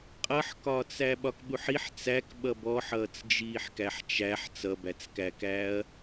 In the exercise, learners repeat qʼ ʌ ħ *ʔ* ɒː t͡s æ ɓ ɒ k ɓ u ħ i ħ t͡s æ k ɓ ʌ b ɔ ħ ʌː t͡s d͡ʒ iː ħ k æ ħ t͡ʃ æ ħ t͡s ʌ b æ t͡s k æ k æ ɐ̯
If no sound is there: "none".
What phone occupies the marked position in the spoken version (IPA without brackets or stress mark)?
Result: k